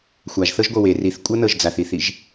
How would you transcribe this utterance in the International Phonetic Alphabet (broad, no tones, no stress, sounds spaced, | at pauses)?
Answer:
xʷ a ʒ θ ɤ ʒ ɡʷ ɤ w e r i θ kʷʼ ɤ n ɤ ʒ d͡z a θ i θ i ʒ